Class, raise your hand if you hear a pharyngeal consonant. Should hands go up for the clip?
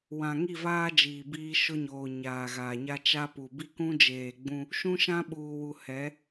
no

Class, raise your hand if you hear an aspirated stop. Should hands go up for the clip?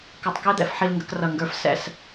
no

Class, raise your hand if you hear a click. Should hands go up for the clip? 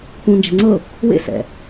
yes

